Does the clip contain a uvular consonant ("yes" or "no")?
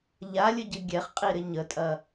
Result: yes